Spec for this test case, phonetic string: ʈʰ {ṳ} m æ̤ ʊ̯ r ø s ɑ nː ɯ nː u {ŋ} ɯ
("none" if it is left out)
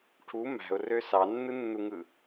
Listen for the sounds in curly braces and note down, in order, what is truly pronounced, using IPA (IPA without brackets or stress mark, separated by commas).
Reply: u, ŋ